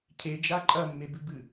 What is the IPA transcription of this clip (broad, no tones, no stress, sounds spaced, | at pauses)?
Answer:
cʰ e d͡ʒ a ǃʼ ɐ mː e b ʉ b ɨ